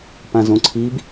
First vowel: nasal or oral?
nasal